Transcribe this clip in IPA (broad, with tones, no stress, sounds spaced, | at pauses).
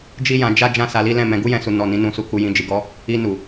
d͡ʒ i˦ j ã˧ d͡ʒ a˦ d͡ʒ ã˦˨ s a˧ l i˦ l ɛ̃˦˨ m ɛ̃˨˦ ɡ u˦ j ɛ̃˧ s u˨ n ɔ˨ n ĩ˨˦ n ũ˧ s u˧ k u˧ j ĩ˧ d͡ʒ i˨ ɡ ɔ˧ | i˧ n u˨